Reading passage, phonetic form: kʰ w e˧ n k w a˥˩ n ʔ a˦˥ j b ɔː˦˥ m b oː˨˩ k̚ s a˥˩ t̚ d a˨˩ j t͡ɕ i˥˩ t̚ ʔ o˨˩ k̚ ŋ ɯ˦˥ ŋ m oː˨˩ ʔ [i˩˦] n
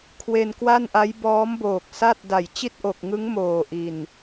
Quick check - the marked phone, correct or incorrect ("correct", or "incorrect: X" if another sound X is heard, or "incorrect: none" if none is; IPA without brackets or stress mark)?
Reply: incorrect: i˨˩